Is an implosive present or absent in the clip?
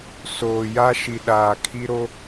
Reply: present